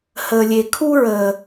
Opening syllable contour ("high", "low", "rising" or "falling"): low